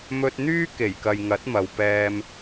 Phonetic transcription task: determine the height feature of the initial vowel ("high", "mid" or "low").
mid